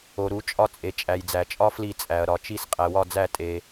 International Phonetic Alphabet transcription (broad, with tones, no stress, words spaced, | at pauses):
o˨ɾu˨˩˦ t͡ʃʼɒ˦t͡sʼe˨ t͡ʃʼæ˨jd͡zæ˨t͡ʃʼɒ˦ fli˦˨t͡sʼæ˨ɐ̯ ɾɒ˨t͡ʃi˦˨s qʼæ˨wɒ˦˨d͡zæ˦˨ tʼe˨